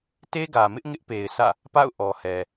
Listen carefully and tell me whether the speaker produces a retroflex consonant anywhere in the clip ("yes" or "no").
no